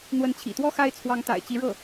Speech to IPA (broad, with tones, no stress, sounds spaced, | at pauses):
n̪ w ə˧˥ n t͡ɕʰ ḭ˨˩ t̪ w ɔ˥ x a˥ ɪ̯ t͡sʰ w ɑ˧˥ ŋ t̪ a̰˨˩ ɪ̯ t͡ɕ i˧˥ ɻ ɤ˥˩